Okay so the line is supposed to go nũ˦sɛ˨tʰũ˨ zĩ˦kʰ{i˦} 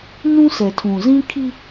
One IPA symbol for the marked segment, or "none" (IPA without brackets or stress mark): i˦